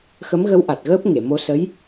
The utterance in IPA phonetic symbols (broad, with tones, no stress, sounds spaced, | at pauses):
x ə˧˥ m ɣ ə˧˥ w ʔ a˨˩ t̚ ɣ əː˦˥ p̚ ŋ e˨˩˨ m o˧ s ə˧˥ j